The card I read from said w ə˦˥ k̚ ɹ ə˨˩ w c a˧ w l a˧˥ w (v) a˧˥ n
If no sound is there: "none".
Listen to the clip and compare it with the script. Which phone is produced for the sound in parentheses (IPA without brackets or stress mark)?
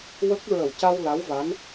v